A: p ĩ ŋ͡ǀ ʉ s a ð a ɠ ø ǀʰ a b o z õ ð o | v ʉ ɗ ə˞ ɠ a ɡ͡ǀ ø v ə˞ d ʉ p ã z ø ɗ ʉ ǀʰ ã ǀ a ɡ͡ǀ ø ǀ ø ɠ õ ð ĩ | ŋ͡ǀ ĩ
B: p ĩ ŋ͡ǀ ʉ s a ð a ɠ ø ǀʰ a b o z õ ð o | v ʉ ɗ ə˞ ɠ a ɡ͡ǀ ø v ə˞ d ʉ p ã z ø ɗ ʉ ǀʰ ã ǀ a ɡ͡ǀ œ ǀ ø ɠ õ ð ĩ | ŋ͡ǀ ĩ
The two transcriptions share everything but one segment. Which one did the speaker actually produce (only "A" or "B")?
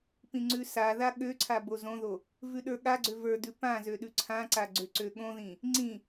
A